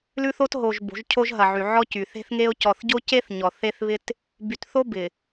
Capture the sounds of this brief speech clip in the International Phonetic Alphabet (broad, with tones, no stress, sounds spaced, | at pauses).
l ʉ˦ θ o˦ t ɦ o˨ ʒ b o̤˨˦ ʒ cʰ o˦ ʒ ɦ ɐ˨ ʕ y˨ ʕ ɔ˦ c y˨ θ e̤˦ θ ŋ e˦ o̯ c ɔ˨ θ ɟ o˦ c e˦ θ ɲ ɔ˨ θ e˦ θ β ɪ˦ t | b y˨ t θ o˦ b ɪ˨